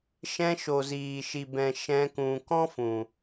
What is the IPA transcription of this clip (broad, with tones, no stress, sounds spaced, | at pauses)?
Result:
ʃ ɛ̃˧ ʃ o˨ z iː˨ ʃ i˨ b ɛ̃˨ ʃ ɛ̃˧ k ũ˨ k ɔ̃˦ f ũ˨